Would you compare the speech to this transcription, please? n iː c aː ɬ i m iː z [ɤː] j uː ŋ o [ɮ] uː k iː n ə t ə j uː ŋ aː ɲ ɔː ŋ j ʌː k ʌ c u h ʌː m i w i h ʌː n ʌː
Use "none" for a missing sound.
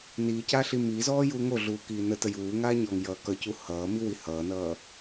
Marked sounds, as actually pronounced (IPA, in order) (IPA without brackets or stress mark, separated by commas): ɔː, ɮ